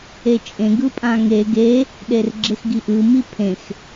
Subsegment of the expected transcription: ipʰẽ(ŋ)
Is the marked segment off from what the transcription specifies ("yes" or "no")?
yes